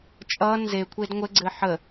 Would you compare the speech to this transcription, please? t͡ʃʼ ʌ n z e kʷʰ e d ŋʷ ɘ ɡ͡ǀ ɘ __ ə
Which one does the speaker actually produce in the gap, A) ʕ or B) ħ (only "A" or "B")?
B